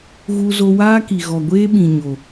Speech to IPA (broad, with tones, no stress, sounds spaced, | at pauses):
ɣ u˧ z o˧ w aː˦ k i˨ ɣ ɔ˨ ɡʷ eː˦ ɓ ĩ˨ ɲ o˨